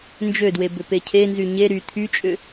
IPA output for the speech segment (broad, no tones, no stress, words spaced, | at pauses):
nd͡ʒødwe bʏpecʰenzy ɲe ɾy t̪ʰyt͡ʃʼʏ